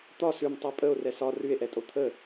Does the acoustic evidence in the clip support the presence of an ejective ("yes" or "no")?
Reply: yes